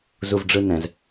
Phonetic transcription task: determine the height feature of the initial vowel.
high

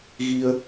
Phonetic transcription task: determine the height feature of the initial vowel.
high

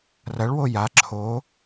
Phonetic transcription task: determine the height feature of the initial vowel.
low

